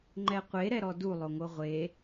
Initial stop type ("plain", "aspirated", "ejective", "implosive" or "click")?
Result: click